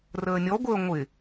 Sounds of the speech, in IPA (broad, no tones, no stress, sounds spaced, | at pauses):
r əː nʲ ɔ ɡʷ əː ŋʷ ɪ